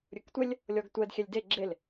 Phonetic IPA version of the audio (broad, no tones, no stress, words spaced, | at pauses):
ɾʲɵktʷɛlʲ | lʲɔɡtʷɛd xʲɛlʲde ɡ͡ǁel